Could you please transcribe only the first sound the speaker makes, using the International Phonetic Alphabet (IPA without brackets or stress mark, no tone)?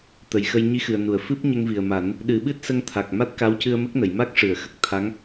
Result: t̪